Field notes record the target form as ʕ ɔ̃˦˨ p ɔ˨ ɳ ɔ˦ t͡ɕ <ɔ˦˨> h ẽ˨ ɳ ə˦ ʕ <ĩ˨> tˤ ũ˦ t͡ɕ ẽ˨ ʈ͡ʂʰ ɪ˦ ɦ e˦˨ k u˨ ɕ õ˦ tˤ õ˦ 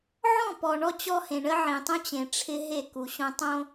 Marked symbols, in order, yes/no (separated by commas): no, yes